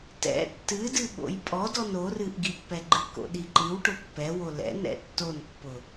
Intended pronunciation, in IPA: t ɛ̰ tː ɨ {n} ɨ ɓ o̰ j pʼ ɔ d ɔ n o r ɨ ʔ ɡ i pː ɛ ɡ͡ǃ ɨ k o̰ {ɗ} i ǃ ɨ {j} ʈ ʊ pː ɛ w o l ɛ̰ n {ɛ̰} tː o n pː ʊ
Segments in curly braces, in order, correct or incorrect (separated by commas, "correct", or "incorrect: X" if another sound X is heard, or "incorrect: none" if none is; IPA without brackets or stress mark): incorrect: d, correct, incorrect: w, correct